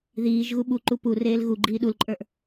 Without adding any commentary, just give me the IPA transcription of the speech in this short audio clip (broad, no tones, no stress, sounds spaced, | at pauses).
ð iː ʒ ɣ u ɓ u ǃ u p u r eː l ɣ u ɡ͡ǃ iː ɗ u l ǃʼ ə˞ ʔ